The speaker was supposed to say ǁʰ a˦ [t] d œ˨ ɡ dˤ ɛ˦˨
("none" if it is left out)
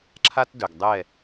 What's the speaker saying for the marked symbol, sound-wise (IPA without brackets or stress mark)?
t